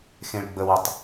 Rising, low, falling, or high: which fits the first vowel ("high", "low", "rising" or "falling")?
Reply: low